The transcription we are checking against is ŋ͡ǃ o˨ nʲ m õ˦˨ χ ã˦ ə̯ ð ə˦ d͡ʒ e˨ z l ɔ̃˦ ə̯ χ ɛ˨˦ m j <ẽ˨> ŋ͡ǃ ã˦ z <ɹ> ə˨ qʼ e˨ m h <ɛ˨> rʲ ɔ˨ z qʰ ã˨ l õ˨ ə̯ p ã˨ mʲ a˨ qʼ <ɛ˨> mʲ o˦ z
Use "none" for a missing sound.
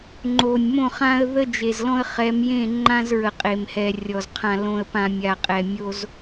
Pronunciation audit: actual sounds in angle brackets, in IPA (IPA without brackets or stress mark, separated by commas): ẽ˦˨, ɹ, ɛ˨, ɛ˨